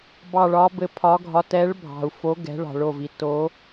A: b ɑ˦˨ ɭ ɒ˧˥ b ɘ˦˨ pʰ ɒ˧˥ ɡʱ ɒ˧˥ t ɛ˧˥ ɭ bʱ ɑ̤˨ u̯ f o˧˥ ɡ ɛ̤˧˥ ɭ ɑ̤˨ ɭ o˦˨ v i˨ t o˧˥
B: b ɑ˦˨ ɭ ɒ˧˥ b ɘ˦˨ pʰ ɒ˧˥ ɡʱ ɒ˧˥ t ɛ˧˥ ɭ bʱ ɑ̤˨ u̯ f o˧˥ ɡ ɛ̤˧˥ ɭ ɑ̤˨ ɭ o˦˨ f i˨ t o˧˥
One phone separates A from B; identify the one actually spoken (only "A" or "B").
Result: A